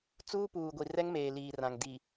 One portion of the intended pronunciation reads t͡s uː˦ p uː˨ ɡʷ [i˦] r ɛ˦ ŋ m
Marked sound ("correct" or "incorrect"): incorrect